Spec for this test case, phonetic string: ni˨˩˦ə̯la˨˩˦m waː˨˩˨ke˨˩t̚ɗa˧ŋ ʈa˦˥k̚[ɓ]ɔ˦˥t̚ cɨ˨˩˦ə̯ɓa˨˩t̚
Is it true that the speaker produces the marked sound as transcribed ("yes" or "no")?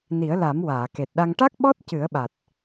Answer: yes